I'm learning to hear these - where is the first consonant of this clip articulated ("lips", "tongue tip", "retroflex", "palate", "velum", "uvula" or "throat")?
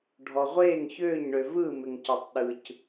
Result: retroflex